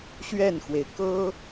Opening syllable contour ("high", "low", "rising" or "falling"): falling